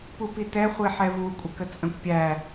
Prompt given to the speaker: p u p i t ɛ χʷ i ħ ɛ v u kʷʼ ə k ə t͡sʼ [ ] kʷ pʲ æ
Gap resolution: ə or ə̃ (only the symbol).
ə̃